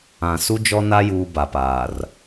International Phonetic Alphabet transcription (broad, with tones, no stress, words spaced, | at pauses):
ã˨ su˦d͡ʒɔ˦ na˦ juː˦ba˨paː˨r